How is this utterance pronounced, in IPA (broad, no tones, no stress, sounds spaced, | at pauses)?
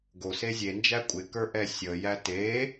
ɡ o s e zʲ e n d͡ʒ æ kʷʼ ɪ k ə˞ ʔ ɛ sʲ ə j æ t e